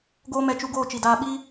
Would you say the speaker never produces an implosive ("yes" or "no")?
no